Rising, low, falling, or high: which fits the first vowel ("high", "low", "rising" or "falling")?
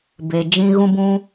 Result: low